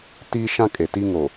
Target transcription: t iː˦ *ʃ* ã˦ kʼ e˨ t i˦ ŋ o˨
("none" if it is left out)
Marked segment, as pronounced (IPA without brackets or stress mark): ʃ